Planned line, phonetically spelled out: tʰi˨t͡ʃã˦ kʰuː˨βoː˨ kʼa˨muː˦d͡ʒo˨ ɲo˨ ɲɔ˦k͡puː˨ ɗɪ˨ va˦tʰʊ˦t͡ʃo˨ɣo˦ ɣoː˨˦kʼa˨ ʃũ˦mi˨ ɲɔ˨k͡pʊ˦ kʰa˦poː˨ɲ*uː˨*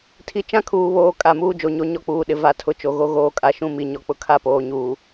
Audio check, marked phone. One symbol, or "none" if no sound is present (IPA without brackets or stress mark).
uː˨